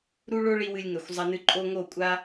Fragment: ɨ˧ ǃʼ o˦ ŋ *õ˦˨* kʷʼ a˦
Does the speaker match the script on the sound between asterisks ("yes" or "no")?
no